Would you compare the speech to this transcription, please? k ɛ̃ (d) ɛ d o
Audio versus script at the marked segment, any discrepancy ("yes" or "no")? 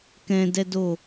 no